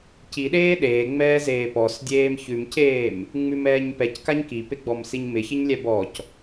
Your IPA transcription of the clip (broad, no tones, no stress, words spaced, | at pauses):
ciɗeː ɗeːŋ͡mɛːzeː pɔsdʲeːm çʉmceːm | ŋ͡mʉmɛːɲpɛckaɲ kipeɡ͡bɔmsiɲ mɪçɪɲlʲɛ bɔc